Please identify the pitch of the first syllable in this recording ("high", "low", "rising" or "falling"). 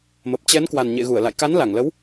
low